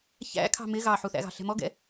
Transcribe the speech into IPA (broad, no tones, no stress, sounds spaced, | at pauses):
ç æ̰ kʰ ɑ̤ m ɪ ɣ ɑ ħ u θ æ̰ ɣ ɑ̤ ɬ ɛ̤ m ɔ ɡ ɛ̰